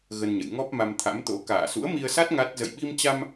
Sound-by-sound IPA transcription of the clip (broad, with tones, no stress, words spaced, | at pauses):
ɣə˧nɲə̰˧˨j ŋɔ˦˥p̚ma˧mt̪ʰa̰˧˥mt̪o̰˧˥ ka̰ː˧˨sṵ˧˥ə̯mi˧ə̯sa˦˥t̚ ŋa˦˥t̚ zə̰˧˨jɓi˧mt͡ɕa˧m